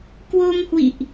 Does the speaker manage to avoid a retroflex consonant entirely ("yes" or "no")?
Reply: yes